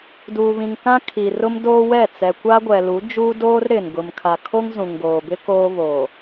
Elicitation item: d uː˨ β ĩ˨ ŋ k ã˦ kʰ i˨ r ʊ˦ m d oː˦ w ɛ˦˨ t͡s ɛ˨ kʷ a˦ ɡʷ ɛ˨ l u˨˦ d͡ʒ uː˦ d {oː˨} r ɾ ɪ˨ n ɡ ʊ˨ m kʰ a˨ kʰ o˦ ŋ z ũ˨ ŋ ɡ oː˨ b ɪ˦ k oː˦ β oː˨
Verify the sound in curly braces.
incorrect: oː˦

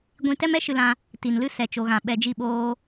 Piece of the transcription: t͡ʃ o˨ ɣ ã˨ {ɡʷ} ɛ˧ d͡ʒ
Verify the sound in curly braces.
incorrect: ɓ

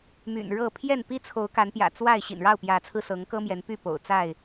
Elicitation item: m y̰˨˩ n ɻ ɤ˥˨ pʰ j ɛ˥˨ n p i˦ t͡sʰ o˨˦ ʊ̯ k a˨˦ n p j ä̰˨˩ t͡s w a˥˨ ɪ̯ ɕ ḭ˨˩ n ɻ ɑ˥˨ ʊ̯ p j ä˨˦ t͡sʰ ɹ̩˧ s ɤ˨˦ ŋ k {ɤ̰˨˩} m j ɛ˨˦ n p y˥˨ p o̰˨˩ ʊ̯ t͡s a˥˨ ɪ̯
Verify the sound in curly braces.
incorrect: ɤ˦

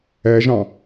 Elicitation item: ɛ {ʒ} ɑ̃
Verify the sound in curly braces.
correct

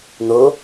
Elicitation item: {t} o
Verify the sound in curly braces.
incorrect: n̪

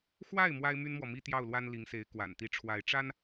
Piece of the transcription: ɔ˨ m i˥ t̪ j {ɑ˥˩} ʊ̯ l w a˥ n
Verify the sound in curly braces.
correct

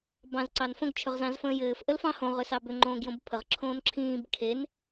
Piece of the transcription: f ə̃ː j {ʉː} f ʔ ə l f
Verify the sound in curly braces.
incorrect: ɘː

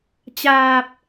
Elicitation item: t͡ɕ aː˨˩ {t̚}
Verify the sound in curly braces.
incorrect: p̚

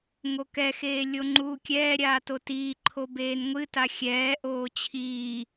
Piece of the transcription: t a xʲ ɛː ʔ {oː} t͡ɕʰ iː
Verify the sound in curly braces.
correct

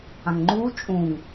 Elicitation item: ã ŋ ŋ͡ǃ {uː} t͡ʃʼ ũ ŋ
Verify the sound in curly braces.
correct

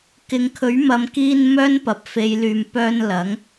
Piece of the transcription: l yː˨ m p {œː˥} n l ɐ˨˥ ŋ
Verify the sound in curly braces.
incorrect: œː˧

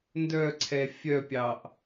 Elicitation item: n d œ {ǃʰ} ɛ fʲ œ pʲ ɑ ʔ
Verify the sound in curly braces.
incorrect: ǀʰ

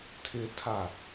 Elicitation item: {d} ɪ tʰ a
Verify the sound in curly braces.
incorrect: tʰ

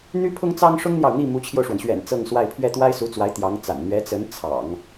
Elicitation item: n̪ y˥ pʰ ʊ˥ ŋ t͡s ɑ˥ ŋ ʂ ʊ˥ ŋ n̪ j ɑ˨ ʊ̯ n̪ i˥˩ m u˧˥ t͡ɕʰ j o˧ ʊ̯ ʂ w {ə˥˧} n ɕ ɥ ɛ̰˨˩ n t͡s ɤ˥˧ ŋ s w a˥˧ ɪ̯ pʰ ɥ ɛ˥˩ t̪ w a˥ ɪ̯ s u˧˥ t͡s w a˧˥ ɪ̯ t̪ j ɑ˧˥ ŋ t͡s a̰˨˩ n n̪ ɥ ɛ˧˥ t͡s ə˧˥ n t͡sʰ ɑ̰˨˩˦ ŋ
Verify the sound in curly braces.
incorrect: ə˩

